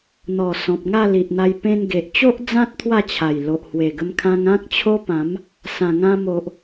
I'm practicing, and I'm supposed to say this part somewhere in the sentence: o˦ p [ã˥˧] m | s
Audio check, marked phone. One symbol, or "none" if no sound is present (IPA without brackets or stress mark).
ã˨˦